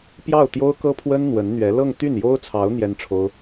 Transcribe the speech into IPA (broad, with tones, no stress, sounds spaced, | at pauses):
p j ɑ˥˩ ʊ̯ t̪ j o˥ ʊ̯ k ɤ˥ pʰ w ə˥ n n̪ w ə˧˥ n n̪ ɥ ɛ˧˥ l ɤ˥˧ ŋ t̪ y˥˩ n j o˥ ʊ̯ t͡sʰ ɑ˧˥ ʊ̯ n̪ j ɛ˥ n ʈ͡ʂʰ o˥ ʊ̯